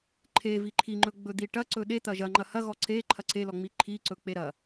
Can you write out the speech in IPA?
ǃʰ e v i ǃʰ i ŋ͡ǃ ɵ ɡ͡b ɵ d̪ i ʈ ɐ ǀ ɵ ɗ e t̪ ɐ ʒ ɐ ŋ͡ǃ ɐ h ɐ ɣ ɔ ǀ e ǃʰ ɐ ǀ e l ɔ ŋ͡m i ǃʰ i ǀ ɵ k͡p e ɾ ɐ

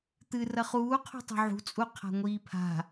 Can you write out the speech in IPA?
t̪ ɨ r ɐ χ uː qʰ ṳ tˤ ṳ ʕ ṳ t͡sʼ u qʰ a̤ ŋʷ iː pʰ a̤

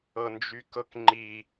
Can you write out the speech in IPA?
ɤ n d͡ʒ y k ɤ k ŋ͡ǃ i

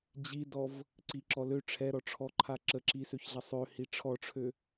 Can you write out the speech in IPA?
d͡ʑ i d ɔ v | ǀ i ǁ ɔ l ø ʈ͡ʂʰ ɛ ɾ ɔ ʈ͡ʂʰ ɔ ǃʰ a ǁ ə ǁ i s ø ç ɮ a sˤ ø h i ʈ͡ʂʰ ɔ ʈ͡ʂʰ ø

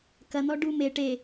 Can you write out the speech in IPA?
k ɐ n̪ ɔ ɖ u m e ʈ e

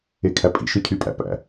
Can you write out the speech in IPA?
e kʰ æ pʼ ḭ ʃ ɯ cʰ y pʼ æ̰ p æ̰

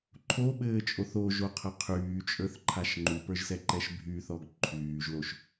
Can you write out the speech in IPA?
ǃʰ o ɓ ɘː t͡ʃʼ o θ o ʒ o qʰ ə qʰ yː t͡ʃʼ ə˞ θ ǃʰ a ʃ ŋ͡ǃ u p ə˞ ʒ s ɛ ǃ ɛ ʃ bʱ y θ ɔ ɡ ǃʰ yː ʒ l o ʃ

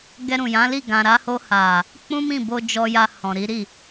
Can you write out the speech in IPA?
ɡ ɛ˧ ɾ ũ˨ j ã˨˦ l i˦˨ ɡ ã˨ ɾ a˧ h o˧ h a˨ | k͡p ũ˦ m ĩ˦˨ b o˧ d͡ʒ ɔ˧ j a˧ h ɔ̃˨ ɾ i˨˦ ɾ i˦˨

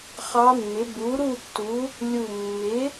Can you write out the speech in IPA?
χ ɑ˧˥ mː ɪ˩˥ b u˩˥ ɾ u˥˨ tː u˩˥ | lʲ u˧˩ mː ɪ˩˥

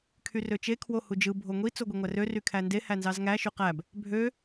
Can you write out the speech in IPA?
kʰ y r ø t͡ʃ e kʰ w o h u d͡ʒ ɯ bʱ o ŋʷ i t͡s o ɡʷ e ŋʷ æ r ø r y kʰ æ n d e h æ n z ɑ z ŋ æ ʃ y q æ b | bʱ ø

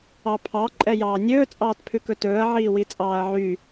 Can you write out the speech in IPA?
ɑ pʰ ɑ ǃʼ ɛ j ɑː nʲ ɵː t͡sʼ ɑː t pʰ ʉ k ɵ t ɵː ɐ̯ ʕ iː w i t͡sʼ ɑː ɐ̯ ʕ y

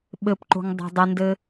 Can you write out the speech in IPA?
ɓ ɘ p ǃ o̤ ŋ dˤ a̤ dˤ ɘ n d ɘ

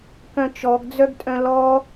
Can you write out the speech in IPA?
k œ̃ t͡ʃ ɔ ɡ d͡z œ ɡ tʼ œ̃ l ɔ

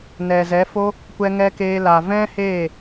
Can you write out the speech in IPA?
n ɛ˨ z ɛ˨˦ f o˦ | kʷ ɛ˧ ŋ ɛ˧ k eː˧ l a˨ v ɛ̃˦ h eː˦˨

